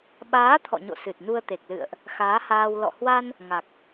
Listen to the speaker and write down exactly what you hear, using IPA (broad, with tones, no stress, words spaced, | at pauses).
ɓaː˨˦ t̪ʰɔ̰˧˨ɲo̰˧˨ sɨ˨˩t̚nu˧ə̯t̪e˨˩k̚lɨ̰˧˨ə̯ʔ | xaː˨˦haː˧w lɔ̰˧˨hwa˧n | ŋa˨˩k̚